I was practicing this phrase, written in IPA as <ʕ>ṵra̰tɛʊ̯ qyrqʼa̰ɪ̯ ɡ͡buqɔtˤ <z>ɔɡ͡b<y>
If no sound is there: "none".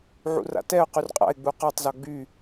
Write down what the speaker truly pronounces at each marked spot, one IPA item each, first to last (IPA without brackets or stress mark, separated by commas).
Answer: ʕ, z, y